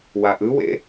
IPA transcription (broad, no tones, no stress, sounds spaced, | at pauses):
w a ʔ ɯ w ḛ